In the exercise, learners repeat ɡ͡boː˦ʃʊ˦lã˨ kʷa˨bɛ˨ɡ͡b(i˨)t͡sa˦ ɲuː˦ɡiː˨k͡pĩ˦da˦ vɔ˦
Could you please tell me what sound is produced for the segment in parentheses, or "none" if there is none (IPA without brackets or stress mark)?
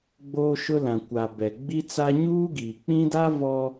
i˦